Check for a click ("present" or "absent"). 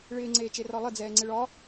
present